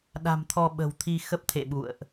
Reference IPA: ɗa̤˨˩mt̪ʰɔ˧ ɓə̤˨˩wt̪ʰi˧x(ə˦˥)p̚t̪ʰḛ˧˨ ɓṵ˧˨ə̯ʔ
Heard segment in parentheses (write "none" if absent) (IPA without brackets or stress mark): ə˦˥